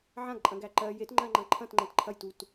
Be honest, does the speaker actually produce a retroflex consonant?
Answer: no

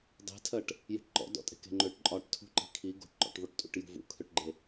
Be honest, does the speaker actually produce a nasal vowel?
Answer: no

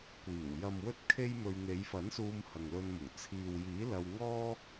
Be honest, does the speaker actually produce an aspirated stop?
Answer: yes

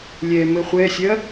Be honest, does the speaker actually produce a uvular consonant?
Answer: yes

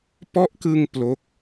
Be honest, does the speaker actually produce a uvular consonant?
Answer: no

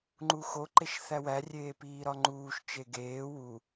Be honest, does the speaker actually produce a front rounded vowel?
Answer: no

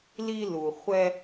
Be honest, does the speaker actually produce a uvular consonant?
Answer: yes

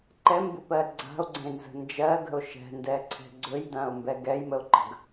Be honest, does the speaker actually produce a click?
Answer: yes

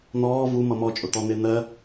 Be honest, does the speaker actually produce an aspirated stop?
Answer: no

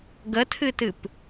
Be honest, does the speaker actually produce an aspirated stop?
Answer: yes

